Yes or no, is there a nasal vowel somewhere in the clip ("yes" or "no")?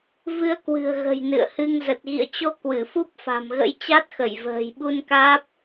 no